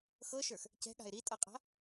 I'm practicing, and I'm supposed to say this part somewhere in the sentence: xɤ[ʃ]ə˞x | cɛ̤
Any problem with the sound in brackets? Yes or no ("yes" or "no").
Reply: no